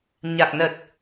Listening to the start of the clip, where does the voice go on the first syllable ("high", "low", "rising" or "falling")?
low